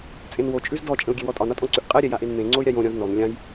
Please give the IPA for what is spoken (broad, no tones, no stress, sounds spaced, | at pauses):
t͡sʼ ẽ n w o t͡ʃʼ ʉ z d ɔ t͡ʃʼ ə̃ u̯ ɡʲ e w ɔ tʼ ɒ n ɒ tʼ ɔ̃ ǀ ʉ ʔ qʼ ɛ ɾʲ ɛ j a ʔ e n m ẽ ŋ͡ǀ o y̯ ɾʲ a j õ ɾʲ ɔ̃ z n ɔ n lʲ ã j